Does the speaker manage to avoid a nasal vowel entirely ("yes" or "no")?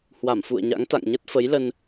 yes